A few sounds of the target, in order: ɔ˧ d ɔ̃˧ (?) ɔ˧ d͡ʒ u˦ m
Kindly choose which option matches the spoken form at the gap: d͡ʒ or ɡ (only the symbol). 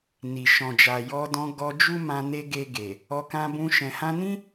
ɡ